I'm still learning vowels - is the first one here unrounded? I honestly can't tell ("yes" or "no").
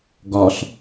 no